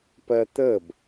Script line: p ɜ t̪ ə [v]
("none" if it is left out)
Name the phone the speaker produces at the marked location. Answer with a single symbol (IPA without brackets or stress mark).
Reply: b